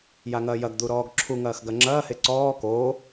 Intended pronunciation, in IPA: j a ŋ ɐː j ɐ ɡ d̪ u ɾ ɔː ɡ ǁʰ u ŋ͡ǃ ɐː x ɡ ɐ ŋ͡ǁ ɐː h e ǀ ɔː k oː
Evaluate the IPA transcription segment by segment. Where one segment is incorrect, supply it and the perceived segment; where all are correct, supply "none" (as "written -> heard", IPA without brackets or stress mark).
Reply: ŋ͡ǃ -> ŋ